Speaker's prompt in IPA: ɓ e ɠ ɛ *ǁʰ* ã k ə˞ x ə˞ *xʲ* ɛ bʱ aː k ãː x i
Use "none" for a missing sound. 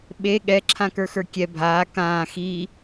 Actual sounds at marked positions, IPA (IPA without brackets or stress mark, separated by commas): ǁʰ, kʲ